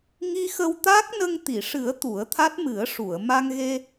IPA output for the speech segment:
ŋ i˧ x ə˧ w t̪ aː˦˥ k̚ n ə˧ ŋ t̪ i˨˩˨ ʂ ɨ˨˩˦ ə̯ t̪ u˨˩˦ ə̯ t̪ʰ a˦˥ t̚ m ɨ˨˩˦ ə̯ ʂ u˨˩˨ ə̯ m a˧ ŋ ɣ e˧

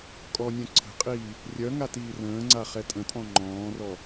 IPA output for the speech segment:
kʼ ɔ nʲ œ̃ ǀʰ ə̤ qʼ iː | rʲ œ ŋ a t iː r ə̃ː ŋ͡ǀ a χ ɛ tʼ ə̃ tʼ ɔ̃ ŋ͡ǃ ɔ̃ː r ɔ

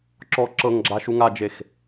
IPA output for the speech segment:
ǁ ɔ ǁ ɤ ŋ ɡ͡ǁ a ʃ u ŋ a d͡ʒ e x

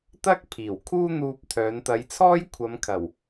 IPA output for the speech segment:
t̪ ɐ˥ k̚ pʰ iː˨˩ w kʰ uː˥ n̪ uː˧ p̚ t̪ʰ œː˨˧ n t̪ ɐ˨˧ j t͡sʰ ɔː˥ j kʷʰ ɐ˨˧ m kʰ ɐ˨˩ w

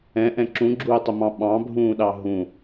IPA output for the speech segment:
ɛ̃ ʔ ɛ̃ ǁ ũ ɡ͡ǁ uː tˤ ʊ m ɑ̃ ɓ ɑ̃ bʱ ũː ɗ ɑ ɦ ũ

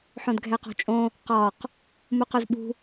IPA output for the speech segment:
ħ õ d ɡʱ ɛ q ɔ̤ t͡ʃʼ õ | q ɒ q | m u q œ z ɓ ṳ

